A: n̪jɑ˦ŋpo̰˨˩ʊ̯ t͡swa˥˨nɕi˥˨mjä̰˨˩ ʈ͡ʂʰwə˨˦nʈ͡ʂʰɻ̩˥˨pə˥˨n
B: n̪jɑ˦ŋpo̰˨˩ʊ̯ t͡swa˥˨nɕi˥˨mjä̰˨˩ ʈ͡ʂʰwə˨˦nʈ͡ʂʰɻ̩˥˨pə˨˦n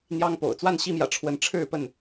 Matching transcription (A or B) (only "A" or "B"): A